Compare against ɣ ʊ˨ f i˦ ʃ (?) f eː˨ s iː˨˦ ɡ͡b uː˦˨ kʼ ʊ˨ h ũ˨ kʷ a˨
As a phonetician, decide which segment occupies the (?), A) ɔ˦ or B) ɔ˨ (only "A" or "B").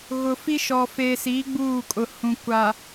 B